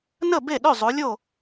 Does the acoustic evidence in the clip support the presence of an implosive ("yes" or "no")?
yes